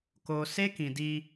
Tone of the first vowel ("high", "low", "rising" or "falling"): low